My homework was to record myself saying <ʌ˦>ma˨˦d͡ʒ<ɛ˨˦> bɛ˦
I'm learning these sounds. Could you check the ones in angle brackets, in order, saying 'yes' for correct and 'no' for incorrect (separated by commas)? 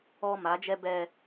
no, no